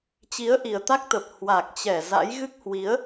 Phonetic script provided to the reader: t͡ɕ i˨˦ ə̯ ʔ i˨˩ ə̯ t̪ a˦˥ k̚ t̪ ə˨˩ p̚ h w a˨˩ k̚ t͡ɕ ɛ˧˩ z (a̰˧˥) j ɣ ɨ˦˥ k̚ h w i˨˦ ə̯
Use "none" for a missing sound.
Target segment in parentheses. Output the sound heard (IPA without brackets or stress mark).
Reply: a̰˧˥